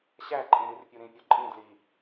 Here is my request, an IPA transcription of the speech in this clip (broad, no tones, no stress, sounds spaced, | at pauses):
ɕ æ ǃʼ ẽ ɾ i r pʲ u ɾ ĩ pʲ ɒ ǃʼ ĩ d l i